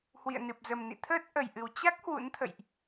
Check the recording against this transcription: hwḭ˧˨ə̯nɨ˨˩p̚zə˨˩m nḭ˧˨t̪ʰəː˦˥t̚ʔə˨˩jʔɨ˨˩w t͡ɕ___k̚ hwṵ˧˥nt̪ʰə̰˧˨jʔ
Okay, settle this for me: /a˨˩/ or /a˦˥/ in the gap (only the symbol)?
a˦˥